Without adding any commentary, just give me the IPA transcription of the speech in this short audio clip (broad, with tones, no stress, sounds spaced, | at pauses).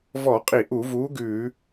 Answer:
v ɔ˧˩˧ qʼ i˧˩˧ ʔ u˧˩˧ v uː˨˥ ɡ ʉː˧˩˧